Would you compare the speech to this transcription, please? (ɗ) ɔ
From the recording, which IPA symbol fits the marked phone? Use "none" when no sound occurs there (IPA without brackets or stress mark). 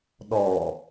ɗ